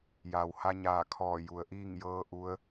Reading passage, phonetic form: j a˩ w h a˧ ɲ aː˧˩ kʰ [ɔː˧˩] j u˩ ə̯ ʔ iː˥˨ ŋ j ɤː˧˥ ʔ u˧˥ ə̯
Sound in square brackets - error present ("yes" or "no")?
no